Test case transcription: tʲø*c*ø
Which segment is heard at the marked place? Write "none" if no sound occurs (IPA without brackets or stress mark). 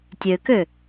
k